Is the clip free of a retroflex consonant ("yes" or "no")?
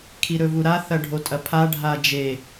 no